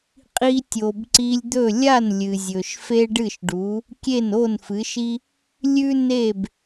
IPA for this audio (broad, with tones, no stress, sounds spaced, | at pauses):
qʼ i˧ tʲ o˩ b ǀ i˧ lʲ d̪ ɵ˥˩ lʲ a˥˩ n lʲ ɨ˩ zʲ ɵ˩ ʃ f e˥ ɖ ɨ˥˩ ʃ ɖ u˩˥ | kʲ e˥˩ n o˥˩ n f ɨ˩˥ ʃ i˥ | lʲ ʉ˥ n e˥˩ b